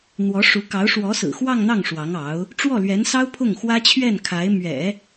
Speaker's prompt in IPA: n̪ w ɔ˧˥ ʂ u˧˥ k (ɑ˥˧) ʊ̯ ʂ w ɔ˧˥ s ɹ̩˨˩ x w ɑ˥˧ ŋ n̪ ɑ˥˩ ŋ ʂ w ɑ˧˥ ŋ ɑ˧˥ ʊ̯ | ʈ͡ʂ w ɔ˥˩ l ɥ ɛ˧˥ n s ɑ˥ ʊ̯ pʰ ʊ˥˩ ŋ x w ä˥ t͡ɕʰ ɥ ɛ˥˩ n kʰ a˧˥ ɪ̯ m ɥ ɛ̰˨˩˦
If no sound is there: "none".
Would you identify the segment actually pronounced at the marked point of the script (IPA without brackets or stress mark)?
ɑ˧˥